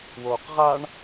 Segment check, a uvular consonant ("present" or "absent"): present